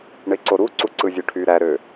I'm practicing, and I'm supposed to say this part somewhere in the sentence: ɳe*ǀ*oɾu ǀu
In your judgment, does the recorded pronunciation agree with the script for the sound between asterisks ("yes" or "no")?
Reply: yes